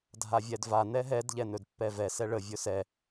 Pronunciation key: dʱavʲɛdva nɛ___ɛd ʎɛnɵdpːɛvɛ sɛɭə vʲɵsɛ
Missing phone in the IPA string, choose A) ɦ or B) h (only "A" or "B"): A